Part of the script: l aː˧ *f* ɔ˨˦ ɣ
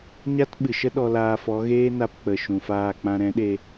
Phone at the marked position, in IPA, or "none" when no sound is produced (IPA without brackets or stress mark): f